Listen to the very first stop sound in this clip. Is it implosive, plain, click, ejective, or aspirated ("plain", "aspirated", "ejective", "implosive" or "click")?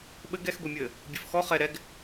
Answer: implosive